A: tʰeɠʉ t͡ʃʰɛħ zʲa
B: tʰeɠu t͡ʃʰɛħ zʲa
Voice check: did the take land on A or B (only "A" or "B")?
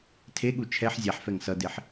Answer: B